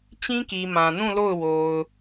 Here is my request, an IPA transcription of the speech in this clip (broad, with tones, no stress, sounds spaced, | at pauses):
t͡ɕ ĩ˦ k i˨ m ã˨ n ũ˦˨ l o˦˨ ʊ̯ w o˨ ʊ̯